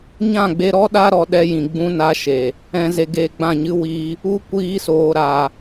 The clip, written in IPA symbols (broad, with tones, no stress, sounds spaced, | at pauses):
ɲ ã˦˨ ɡ͡b e˧ ɾ ɔ˧ ɗ a˧ ɾ ɔ˨ ɗ ɛ˦ j ĩ˨ ɡ͡b ũ˧ n a˧ ʃ e˨ | ɛ̃˨ z e˨ ɡ e˨ ɡ͡b ã˦˨ ɲ ɨ˦ w iː˧ | u˦ kʷ iː˧ s oː˨ ɾ a˨